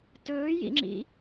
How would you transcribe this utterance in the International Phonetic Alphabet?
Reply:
t ɵː j ḭ ŋ͡ǁ ḭ

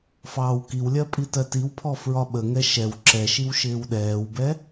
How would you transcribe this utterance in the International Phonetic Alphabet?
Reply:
f ɑː w k i w lʲ ɜ pʼ i t ɜ t i w pʰ ɔ f ɹ ɒ ɓ ə ŋ ɛ ʃ ɛ w ǁ ɛ ʃ i w ʃ ɪː w ɗ ɛː w b ɛ

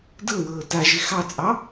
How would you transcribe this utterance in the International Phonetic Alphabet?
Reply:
d ɤ w ɤː t a ʒ ɪ x ɑ t͡sʼ ɑ

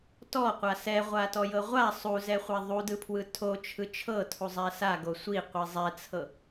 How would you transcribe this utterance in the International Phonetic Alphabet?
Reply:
t ɔ qʷ a s ɛ ʁʷ a t ɔ j ɤ ʁʷ a sˤ u z ɛ χʷ a ðˤ u d ɯ pʰ w ɯ tʰ o t͡ʃʰ ɯ t͡ʃʰ ɤ tʰ u zˤ ɛ s a ɡ o sʷ i qʷ i zˤ ɛ t͡sʰ ɤ

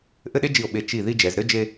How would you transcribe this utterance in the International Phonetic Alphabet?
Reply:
ʔ ɘ˥˧ ɗ e˥ d͡ʒ i˧˩ o̯ ɓ e˧˩ t͡ʃ i˧˩ ð i˥˧ d͡ʒ ɛ˩˧ z ɾ ɘ˥˧ d͡ʒ e˧

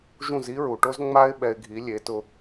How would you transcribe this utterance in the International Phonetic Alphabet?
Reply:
ʒ ũ˥˩ z i˥ ɹ u˩ ʈ o˥ z ŋ͡m a˥ ɪ̯ ɓ ɛ˧ ɪ̯ ɡʱ i˩˥ lʲ e˩˥ t ʊ˧

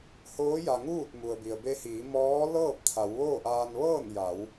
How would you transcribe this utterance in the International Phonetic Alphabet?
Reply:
h oː˧˥ j a˩ ŋ uː˥˨ t̚ m u˩ ə̯ b i˩ ə̯ b e˧ h iː˩˧ m ɔː˧˥ l ɤː˥˨ p̚ t̪ʰ a˩˧ w ʋ oː˥˨ ʔ aː˧ n ʋ ɤː˥˨ n j a˩˧ w

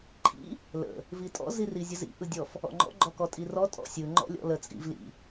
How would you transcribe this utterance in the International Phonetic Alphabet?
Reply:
ǃʰ ḭ | l ə̰ | v i tʼ ɔ̰ z i r i zʲ ə z ḭ ʔ ɯ dʲ ɔ f | ɔ̰ ŋ͡ǃ ɔ̰ ɡ͡ǃ ɔ k ɔ tʼ i r ɔ tʼ ɔ̰ sʲ ɯ ŋ͡ǃ ɔ̰ lʲ ɔ̰ l ə t͡sʼ ḭ v l ḭ

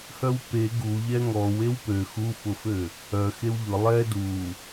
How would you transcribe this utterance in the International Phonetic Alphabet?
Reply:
h œ w p e ɡ u ʎ ɛ ŋ ɔ w e w p ø x u f ʊ f ø | œ x e w ʎ ʊ lˠ ɛ d u

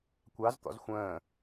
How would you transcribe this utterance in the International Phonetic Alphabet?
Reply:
kʷ ɑ z t̪ ɔ̰ z xʷ ə̃ː

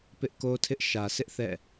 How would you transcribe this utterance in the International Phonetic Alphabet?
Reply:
p ɪ˦ ʔ k o˦ tʰ ɪ˦ ʔ ʃ ä˨ s ɪ˦ ʔ θ ɛ̰˦˨

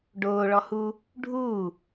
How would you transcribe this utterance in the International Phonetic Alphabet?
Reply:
ɖ oː ɭ ɔ h uː | ɖʱ uː

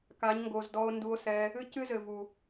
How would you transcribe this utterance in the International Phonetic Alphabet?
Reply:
k a˨˦ ɲ ŋ ɡ o˨ z d ɔ˧ o̯ n d u˧ o̯ s ɛ˧ | ɨ˦ c ɨ˦ z ɘ˨ v u˨

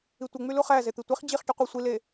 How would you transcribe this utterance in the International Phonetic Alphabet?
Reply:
i tʷ ɯ ŋ͡m y l u χ æ z e t̪ i tʷ i χ d͡ʑ i χ ʈ y qʷ i sʷ i l e

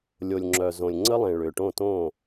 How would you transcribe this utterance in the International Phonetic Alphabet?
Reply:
lʲ o˨ lʲ ŋ͡ǁ œ˨ z õ˨ lʲ ŋ͡ǀ ə˦ lˠ ẽ˨ ɭ ʏː˨ ʈ õ˦˨ t õ˦˨

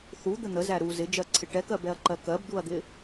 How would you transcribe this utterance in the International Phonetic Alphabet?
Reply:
θ u d̪ ə n̪ ə z æ ɾ u z ɪ d͡ʒ ɜ ǀʰ ɪ ʈ ɛ k ɜ b ɛ ɐ̯ ǃ ɜ k ɜ b d̪ u ɐ̯ d̪ ɪ

